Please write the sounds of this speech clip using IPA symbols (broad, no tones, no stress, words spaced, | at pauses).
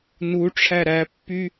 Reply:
nuʈ͡ʂʰæ ɾæpːy